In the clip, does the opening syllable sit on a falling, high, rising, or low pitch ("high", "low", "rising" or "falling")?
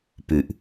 low